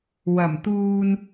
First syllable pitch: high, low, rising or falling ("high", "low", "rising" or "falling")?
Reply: low